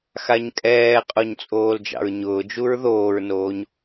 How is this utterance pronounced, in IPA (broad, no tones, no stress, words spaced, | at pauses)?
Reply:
xaɲkʼɛːqʼoɲ t͡sʼoːld͡ʒɑ̰ɹɲʊːd͡ʒuɹ ðoːɹnoːɲ